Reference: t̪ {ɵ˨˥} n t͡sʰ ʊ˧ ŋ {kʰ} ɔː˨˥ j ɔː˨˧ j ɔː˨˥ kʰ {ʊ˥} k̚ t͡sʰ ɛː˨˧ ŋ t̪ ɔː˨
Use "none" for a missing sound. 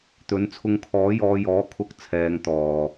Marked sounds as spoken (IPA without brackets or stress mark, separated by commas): ɵ˨˥, kʰ, ʊ˧